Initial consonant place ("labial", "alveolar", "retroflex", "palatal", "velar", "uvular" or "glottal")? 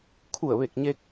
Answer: velar